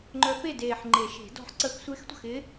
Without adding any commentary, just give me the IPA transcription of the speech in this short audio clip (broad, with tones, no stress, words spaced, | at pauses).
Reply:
ŋ͡ǃœ˧˥ pe˥˩deː˨˩ħ ŋ͡ǃe˨˩˦ʃe̤˨˩˦ dɔ̤˧˥ħǀə˥˩x sʷɪː˧˥xtʷə̤˥˩xɪ˧˥